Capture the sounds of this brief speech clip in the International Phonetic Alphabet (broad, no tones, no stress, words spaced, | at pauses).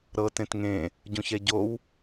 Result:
ɾɤ tẽtŋẽ | ɟũçɛɟow